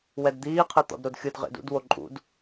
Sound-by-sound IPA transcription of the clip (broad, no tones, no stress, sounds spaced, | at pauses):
w ɛ d d̪ iː qʰ ɯ t̪ ɔ̰ d ɾ o d xʲ ɯ d ʁ ḛ d ṵ d w o ǃʼ ṵ d